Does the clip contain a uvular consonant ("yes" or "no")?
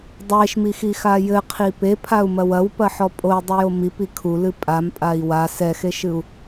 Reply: yes